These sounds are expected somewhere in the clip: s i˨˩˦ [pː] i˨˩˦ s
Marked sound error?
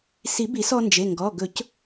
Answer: yes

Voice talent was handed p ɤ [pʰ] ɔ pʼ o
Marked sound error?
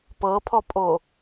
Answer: no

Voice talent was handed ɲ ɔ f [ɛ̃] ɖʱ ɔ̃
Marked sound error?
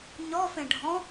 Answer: yes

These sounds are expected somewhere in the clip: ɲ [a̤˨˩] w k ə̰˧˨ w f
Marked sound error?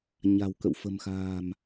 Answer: no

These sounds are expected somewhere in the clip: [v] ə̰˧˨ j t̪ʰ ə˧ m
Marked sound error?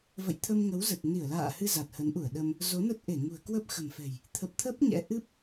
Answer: no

